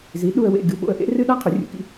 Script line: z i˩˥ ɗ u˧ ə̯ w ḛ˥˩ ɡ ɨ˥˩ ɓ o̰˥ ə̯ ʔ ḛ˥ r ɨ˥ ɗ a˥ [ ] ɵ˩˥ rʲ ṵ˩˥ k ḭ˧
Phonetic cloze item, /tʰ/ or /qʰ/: qʰ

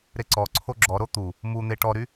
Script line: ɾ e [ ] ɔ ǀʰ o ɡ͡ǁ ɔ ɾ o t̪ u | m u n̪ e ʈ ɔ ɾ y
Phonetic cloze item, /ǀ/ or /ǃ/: ǀ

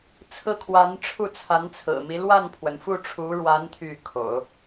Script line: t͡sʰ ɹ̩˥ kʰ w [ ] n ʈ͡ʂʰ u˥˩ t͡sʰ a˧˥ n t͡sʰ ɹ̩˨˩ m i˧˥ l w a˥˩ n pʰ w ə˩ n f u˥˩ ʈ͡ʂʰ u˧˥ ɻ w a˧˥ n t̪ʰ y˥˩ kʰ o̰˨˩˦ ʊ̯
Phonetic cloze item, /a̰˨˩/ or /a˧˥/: a˧˥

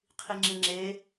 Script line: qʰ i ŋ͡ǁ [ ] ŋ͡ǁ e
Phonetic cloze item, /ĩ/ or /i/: ĩ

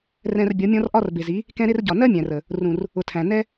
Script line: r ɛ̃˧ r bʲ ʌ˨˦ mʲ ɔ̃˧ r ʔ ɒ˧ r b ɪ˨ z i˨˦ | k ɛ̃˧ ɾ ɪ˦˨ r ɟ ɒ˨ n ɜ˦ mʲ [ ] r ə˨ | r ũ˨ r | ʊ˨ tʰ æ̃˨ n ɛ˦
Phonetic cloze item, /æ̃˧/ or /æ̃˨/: æ̃˨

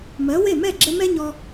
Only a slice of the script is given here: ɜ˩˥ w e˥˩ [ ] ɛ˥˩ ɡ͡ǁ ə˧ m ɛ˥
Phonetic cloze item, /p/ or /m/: m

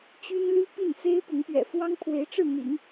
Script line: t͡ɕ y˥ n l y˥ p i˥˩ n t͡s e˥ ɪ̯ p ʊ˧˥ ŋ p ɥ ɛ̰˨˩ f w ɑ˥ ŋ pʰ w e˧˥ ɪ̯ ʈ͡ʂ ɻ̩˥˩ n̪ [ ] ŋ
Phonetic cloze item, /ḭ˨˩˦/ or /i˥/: ḭ˨˩˦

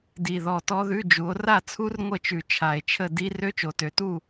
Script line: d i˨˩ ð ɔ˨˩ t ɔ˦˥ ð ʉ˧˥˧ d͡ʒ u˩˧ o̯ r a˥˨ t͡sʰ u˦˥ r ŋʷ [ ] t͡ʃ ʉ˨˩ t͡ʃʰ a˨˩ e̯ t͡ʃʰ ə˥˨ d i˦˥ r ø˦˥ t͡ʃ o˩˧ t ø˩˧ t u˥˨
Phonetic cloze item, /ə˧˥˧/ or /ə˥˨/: ə˥˨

